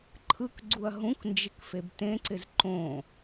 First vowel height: high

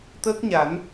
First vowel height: mid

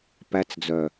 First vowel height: low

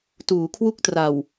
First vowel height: high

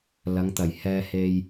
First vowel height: low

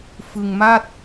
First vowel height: high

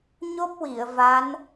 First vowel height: mid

